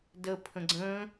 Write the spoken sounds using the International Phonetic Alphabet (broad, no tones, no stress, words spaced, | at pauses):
də pʰə̃ɡ͡ǀə̃ː